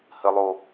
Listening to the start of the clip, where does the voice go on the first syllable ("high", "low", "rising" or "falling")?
low